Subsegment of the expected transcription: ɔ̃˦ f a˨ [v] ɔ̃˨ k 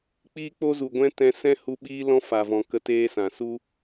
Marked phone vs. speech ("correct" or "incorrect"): correct